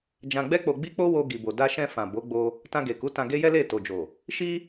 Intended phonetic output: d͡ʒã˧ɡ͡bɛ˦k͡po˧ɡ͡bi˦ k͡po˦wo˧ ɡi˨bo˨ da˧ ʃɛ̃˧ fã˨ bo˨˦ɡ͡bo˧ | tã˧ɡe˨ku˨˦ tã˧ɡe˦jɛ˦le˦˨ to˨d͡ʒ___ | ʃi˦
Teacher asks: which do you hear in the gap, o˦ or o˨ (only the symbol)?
o˨